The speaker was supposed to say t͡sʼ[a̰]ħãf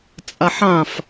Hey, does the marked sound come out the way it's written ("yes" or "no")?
no